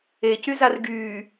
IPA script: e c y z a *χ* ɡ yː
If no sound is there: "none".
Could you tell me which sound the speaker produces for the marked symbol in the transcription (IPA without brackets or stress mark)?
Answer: r